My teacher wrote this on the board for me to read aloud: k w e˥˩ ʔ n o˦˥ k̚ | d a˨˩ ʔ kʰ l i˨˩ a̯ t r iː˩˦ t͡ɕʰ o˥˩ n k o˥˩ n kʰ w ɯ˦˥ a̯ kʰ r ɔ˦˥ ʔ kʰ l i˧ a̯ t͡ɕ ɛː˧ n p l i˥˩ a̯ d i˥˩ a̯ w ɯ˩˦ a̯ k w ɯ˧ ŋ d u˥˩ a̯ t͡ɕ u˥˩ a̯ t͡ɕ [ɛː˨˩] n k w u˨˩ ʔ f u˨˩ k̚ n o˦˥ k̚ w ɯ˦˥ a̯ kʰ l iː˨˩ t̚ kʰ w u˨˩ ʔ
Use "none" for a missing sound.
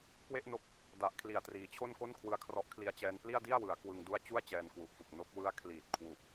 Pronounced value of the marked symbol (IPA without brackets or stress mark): ɛː˧